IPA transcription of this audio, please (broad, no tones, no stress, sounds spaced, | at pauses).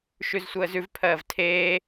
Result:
ʃ ʉ z sʷ əː z ʉ v pʰ ɜː v tʰ eː